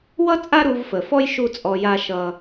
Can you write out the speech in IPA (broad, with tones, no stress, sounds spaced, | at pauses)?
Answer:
w ʌ˦ t͡sʼ a˦ ɾ u˧ v f ə˨ f ɔ˦ j ʃ u˦ t͡sʼ ɔ˧ j a˦ ʃ ʌ˦